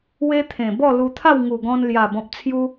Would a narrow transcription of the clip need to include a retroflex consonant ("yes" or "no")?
no